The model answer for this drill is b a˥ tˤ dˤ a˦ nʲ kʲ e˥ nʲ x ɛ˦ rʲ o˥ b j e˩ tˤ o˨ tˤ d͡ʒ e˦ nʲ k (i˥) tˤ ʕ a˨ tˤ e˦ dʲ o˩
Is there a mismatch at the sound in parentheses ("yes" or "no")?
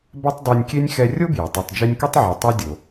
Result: no